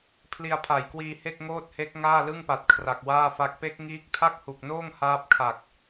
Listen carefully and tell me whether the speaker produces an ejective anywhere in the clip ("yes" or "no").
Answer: no